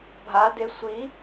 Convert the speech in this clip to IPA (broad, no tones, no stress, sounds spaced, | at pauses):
bʱ a d e sʷ i